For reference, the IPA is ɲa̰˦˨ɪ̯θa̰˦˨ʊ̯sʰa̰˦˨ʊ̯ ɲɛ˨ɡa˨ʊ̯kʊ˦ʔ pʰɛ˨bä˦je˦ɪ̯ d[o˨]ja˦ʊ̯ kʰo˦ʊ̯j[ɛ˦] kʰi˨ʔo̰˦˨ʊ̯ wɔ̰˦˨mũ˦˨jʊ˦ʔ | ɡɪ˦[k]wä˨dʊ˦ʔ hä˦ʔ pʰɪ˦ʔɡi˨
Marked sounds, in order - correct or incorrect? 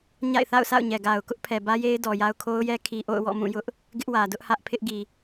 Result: incorrect, correct, incorrect

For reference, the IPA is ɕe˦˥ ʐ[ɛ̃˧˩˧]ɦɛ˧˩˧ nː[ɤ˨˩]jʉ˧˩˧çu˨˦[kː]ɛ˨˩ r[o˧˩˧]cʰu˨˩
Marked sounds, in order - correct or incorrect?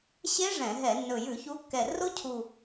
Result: correct, incorrect, correct, incorrect

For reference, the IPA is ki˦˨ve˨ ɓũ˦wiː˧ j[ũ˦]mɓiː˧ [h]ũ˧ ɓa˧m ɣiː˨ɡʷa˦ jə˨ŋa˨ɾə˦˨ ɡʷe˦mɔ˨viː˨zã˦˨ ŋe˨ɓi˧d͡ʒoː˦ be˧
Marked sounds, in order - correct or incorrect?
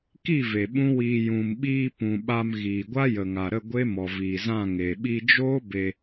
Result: incorrect, incorrect

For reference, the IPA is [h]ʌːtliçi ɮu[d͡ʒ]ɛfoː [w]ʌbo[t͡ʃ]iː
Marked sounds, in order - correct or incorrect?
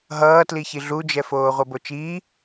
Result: incorrect, correct, incorrect, correct

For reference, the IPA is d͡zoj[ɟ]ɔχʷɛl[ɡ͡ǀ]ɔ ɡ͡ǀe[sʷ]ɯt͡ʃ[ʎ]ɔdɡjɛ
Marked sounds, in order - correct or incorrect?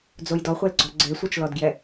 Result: incorrect, correct, correct, incorrect

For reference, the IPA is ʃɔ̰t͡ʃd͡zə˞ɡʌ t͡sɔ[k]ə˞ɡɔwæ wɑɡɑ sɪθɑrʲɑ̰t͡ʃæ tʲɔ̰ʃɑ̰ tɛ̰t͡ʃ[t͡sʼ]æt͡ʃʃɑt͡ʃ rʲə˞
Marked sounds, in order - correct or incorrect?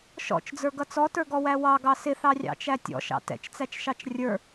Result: incorrect, incorrect

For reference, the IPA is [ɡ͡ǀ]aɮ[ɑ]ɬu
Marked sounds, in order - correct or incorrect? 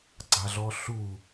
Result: correct, incorrect

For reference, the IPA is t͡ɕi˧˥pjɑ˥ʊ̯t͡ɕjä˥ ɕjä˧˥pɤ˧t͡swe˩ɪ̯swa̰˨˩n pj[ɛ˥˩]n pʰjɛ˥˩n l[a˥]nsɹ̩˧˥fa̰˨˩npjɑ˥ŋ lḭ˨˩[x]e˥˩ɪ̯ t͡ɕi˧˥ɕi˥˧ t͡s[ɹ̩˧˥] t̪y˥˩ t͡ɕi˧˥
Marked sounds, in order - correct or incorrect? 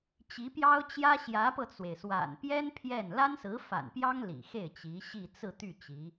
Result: incorrect, correct, correct, incorrect

